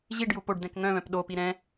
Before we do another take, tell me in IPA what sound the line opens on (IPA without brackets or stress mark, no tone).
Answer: ʑ